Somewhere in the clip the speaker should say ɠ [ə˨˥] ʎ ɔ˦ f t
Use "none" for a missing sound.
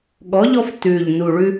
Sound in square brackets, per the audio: ɔ˨˥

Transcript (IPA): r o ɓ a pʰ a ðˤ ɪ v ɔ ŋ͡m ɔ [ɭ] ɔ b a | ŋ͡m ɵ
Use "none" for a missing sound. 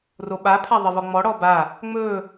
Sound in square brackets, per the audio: ɽ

